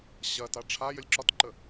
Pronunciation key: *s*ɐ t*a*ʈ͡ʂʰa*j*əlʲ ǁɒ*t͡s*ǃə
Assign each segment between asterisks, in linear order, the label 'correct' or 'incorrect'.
incorrect: ɕ, correct, correct, incorrect: t

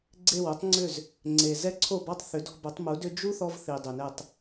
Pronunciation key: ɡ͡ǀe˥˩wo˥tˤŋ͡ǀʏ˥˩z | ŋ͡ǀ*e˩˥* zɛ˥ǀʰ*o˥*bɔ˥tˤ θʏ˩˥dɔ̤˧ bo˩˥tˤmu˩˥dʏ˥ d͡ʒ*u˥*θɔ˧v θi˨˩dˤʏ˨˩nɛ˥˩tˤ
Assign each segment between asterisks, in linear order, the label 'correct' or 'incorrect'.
incorrect: e˨˩, incorrect: o˥˩, correct

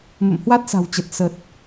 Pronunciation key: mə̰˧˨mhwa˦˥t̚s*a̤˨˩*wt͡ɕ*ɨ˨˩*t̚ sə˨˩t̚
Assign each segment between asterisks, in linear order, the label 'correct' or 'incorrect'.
correct, incorrect: ə˨˩

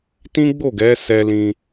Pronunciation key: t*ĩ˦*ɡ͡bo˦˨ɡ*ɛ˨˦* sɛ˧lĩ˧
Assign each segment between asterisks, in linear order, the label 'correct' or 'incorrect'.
correct, correct

